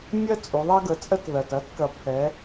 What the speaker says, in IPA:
mʲ ɜ˦ t͡sʼ u˩˧ ðˤ ɐ˦ ɡ ə˩˧ t͡sʼ ə˦ t ð ɜ˩ t ɐ˨˥ t k ɐ˩˧ pʰ ɛ˩˧

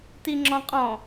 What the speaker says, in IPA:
t i ŋ͡ǁ ɔ̃ qʼ ɔ̃

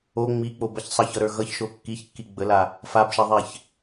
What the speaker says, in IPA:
o ŋ͡m i k͡p o b ʌ ç sˤ ʌ ç ʌ ɾ ə˞ ɣ ʌ ç ʃ o kː i ç kː i ɡ͡b ə l a | f a b ʃ ɛ ðˤ ɛ ç

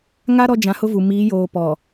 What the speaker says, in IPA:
ŋ a˦ ɾ ɔ˦ d͡ʒ ã˨˦ h ʊ˦ v u˨ m iː˨˦ j oː˨ p ɔ˨

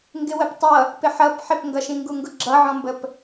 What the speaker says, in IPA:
ŋ ɡ ɪ w ə p tˤ ʌ | p ɪ ħ ʌ p ħ ɪ p ŋ ɡ ʌ ʃ ĩ ŋ ɡ u ŋ ɡ ʊ ɡ͡ǁ ʌ ʕ ɔ̃ m b ə p

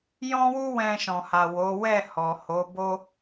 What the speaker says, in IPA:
j ɔ̃˦ w u˦ w ɛ̃˧ ʃ ɔ̃˨ h a˨ w o˨˦ w ɛ˦˨ h ɔ˨ h o˨˦ b o˦

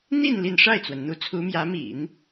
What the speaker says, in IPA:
n̪ i˥˧ n l i˥˧ n ʂ a˥˩ ɪ̯ t͡s w ə˩ n n̪ u˧˥ t͡sʰ u˧˥ m j ä˧˥ m ḭ˨˩˦ n

